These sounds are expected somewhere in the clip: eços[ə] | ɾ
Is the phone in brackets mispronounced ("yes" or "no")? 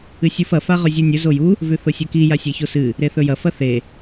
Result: yes